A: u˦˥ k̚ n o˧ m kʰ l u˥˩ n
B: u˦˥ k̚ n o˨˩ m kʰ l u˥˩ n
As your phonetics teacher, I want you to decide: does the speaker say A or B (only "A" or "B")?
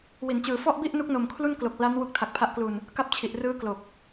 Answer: B